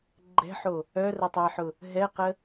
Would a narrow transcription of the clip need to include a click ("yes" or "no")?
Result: yes